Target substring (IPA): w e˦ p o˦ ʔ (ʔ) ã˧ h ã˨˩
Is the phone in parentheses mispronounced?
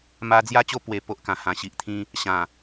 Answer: yes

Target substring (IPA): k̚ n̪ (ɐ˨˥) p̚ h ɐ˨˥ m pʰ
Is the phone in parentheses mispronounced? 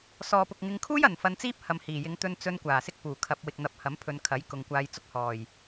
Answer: no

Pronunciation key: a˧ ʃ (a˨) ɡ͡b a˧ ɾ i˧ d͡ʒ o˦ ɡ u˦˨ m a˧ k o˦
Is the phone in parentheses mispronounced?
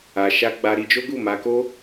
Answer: yes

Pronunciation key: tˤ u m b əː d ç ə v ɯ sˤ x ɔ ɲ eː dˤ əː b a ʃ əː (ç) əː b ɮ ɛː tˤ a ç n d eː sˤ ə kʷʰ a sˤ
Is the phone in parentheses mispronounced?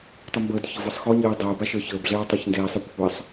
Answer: no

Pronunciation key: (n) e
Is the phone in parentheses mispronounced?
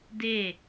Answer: yes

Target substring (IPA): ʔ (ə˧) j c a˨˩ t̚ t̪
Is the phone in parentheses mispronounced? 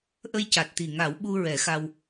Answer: no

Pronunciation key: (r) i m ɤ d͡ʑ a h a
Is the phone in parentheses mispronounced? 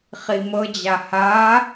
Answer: yes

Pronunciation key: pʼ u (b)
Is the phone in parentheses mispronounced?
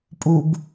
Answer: no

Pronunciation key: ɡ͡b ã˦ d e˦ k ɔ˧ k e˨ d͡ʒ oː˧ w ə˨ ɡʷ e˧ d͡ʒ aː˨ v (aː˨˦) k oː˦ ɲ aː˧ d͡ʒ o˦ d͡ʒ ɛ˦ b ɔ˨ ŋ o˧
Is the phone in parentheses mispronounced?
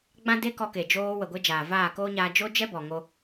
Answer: yes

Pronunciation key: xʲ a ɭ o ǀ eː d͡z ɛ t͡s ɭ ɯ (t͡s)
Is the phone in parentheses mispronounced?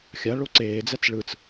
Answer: no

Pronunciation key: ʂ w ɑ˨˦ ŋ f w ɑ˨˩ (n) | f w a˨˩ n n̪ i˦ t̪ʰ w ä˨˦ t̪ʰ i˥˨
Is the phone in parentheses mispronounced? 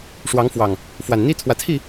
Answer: yes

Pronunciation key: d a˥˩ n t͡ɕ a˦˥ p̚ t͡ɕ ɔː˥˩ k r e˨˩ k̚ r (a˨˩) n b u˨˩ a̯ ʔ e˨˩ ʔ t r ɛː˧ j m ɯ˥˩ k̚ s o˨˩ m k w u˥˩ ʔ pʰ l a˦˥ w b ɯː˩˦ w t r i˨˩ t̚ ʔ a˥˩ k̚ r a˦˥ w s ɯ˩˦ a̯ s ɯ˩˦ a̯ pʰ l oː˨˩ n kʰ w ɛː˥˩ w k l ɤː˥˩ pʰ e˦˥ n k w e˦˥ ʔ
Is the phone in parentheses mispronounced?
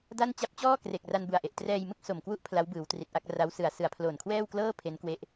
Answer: yes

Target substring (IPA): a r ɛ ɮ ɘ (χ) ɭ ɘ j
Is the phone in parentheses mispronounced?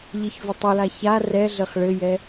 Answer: no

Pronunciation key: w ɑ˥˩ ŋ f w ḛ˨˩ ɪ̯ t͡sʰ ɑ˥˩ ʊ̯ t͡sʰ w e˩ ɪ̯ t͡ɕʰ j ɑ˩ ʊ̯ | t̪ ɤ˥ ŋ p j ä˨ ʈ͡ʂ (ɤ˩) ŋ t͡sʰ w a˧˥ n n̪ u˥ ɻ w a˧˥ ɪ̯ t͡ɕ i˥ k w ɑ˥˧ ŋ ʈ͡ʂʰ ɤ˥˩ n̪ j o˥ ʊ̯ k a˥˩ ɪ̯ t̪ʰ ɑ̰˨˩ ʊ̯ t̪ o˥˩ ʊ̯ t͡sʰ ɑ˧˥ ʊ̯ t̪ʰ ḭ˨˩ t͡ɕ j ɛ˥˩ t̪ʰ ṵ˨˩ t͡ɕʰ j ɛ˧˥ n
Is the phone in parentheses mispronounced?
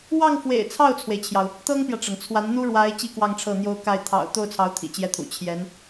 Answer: no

